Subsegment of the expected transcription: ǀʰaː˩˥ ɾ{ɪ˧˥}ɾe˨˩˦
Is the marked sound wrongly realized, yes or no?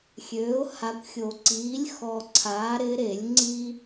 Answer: no